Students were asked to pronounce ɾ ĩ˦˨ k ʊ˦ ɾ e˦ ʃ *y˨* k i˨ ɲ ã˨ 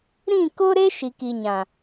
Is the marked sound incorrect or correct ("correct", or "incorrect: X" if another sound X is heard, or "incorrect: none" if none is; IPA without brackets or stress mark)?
incorrect: i˨